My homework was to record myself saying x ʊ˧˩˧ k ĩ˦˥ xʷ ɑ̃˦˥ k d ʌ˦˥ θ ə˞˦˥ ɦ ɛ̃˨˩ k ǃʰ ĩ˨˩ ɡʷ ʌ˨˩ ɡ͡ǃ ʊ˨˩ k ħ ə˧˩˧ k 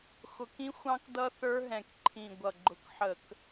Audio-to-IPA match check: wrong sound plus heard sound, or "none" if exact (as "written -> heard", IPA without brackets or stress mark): none